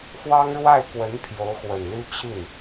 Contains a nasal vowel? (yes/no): no